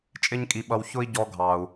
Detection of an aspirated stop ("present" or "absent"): absent